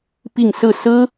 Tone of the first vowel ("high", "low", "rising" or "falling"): falling